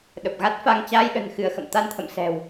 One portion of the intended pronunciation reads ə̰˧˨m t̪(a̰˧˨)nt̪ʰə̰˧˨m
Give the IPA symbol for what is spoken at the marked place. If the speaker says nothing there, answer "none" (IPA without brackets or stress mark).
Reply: a˧